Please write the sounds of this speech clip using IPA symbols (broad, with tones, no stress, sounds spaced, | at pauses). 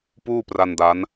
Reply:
p uː˥˩ p r a˧ n d a˦˥ n